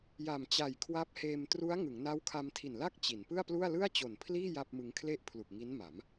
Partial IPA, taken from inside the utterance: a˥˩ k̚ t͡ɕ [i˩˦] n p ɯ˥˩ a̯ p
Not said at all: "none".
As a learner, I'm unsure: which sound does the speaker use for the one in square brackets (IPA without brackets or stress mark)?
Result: i˩˦